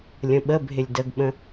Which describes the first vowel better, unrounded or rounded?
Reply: unrounded